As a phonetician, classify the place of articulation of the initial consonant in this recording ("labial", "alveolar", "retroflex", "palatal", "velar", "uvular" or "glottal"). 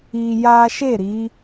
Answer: palatal